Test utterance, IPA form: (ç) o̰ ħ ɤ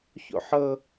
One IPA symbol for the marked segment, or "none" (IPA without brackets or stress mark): ç